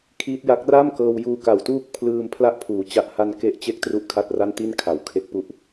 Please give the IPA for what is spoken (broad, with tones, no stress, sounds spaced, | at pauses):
kʰ iː˦˥ t̚ j a˦˥ k̚ r a˥˩ m k ɤː˧ w j uː˧ k a˨˩ w t uː˥˩ k̚ pʰ l ɯː˧ m pʰ l a˥˩ ʔ pʰ uː˩˦ t͡ɕ a˦˥ ʔ h a˥˩ n k e˦˥ ʔ t͡ɕ e˥˩ k̚ t r u˥˩ ʔ kʰ a˥˩ t̚ r a˥˩ n t i˥˩ n kʰ a˩˦ w kʰ e˦˥ k̚ p u˦˥ ʔ